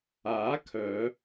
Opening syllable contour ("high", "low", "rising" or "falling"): rising